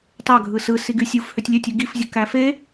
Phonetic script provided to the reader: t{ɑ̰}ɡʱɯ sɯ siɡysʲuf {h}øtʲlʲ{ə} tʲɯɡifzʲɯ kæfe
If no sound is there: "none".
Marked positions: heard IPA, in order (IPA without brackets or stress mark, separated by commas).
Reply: ɑ, h, ø